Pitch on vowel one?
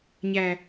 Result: high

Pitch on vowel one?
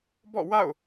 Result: falling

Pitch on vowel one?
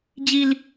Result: high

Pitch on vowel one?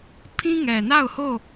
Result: high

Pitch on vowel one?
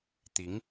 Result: rising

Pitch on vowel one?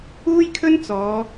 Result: high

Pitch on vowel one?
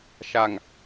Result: low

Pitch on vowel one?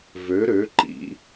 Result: rising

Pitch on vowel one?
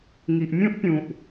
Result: low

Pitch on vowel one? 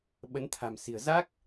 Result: rising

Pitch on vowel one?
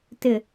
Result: low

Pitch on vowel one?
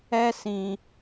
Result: high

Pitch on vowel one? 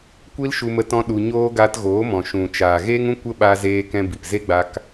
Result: high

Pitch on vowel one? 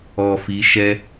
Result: low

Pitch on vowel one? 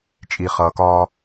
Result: low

